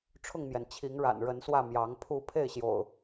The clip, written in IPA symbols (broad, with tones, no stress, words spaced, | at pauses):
ʈ͡ʂʰʊ˥˨ŋmjɛ˩n t͡ɕʰi˨˦ŋɻa̰˨˩nɻə˨˦nswä˥˨ mjɑ˨˦ŋ pʰu˥˨ pʰe˥˨ɪ̯ɕjo̰˨˩ʊ̯